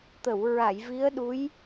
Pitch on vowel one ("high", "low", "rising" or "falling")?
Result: low